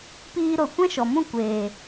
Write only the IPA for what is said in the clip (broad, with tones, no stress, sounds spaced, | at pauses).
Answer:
p iː˧ ɾ o˨ kʷ ɛ̃˦ ʃ ɔ˨ m ũ˦˨ kʷ eː˨